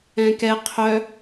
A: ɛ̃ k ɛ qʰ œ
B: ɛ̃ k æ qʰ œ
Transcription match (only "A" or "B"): A